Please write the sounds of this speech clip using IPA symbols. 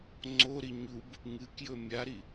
ŋ͡ǀoɾi ɲub | ŋɨkjɵ mʲaɾi

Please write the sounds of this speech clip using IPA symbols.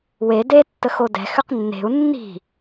we de tːəxodɛ̤ xʏqnːe̤u̯ nːi̤

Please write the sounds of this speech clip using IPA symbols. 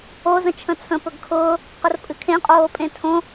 o zə̃t͡ʃʰə̃t͡sʰə̃ pɵɡkʰʊː | qərpʼɨkʰẽ qʼoːpʼẽtʰõ

